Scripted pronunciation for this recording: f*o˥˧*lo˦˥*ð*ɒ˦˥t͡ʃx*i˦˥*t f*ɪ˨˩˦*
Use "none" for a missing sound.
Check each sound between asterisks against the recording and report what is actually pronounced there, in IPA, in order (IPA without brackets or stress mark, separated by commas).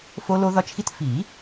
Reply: o˦˥, ð, i˥˧, i˨˩˦